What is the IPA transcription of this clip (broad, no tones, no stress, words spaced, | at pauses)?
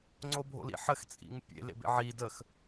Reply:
ŋ͡ǀobʱo̰lḭħəx t͡sʼḭŋpʲḛ lḛbḛʕi dəx